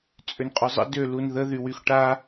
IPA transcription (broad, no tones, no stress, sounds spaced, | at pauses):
t͡sʼ ø n qʼ ʊ zˤ ə̰ d ø l u n ð ə ð y w y x ʈ a